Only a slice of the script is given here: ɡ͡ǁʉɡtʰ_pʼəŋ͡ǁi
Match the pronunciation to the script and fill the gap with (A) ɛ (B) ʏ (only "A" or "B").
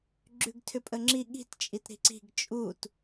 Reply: B